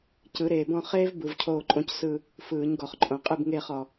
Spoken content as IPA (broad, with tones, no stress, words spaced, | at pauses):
cɯ˨˦ɾeː˨bɔ̃˥˧ χeː˥v bɯ˨˦vcʰoː˥˧ǃʼõ˥c sɯ˥˧ | fɯː˨˩˦ɲɡɔ˨χǃʼõ˨ qʼɯ˥˧bŋeː˥˧χɔ˨